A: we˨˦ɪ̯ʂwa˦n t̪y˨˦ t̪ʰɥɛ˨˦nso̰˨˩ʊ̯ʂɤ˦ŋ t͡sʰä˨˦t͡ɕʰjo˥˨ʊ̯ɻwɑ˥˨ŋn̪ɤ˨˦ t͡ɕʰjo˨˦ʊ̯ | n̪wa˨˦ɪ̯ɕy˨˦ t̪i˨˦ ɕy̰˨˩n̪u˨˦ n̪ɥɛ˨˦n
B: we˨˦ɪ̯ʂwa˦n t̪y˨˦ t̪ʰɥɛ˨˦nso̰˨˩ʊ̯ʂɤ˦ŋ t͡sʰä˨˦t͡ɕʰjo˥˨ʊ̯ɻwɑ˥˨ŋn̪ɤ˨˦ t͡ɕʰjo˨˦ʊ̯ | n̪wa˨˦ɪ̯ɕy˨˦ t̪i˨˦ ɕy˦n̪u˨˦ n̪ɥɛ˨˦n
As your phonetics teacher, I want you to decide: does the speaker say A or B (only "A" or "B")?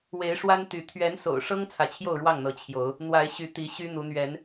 B